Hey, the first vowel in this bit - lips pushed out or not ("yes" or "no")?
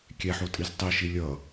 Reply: no